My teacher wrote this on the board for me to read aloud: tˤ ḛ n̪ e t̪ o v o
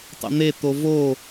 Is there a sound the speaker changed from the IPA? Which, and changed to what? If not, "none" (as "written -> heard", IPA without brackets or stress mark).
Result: none